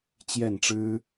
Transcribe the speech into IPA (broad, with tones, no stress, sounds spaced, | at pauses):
t͡ɕ j ɛ˥˩ n ʈ͡ʂ ɻ̩˥